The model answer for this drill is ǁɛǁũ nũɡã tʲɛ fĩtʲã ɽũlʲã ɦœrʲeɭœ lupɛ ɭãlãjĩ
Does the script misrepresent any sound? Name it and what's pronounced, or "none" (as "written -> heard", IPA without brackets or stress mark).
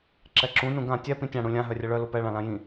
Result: f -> p